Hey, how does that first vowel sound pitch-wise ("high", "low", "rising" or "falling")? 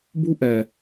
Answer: high